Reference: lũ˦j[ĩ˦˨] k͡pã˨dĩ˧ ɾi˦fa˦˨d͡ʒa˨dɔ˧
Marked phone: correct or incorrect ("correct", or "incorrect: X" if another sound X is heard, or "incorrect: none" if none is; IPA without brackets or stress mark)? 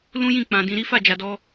correct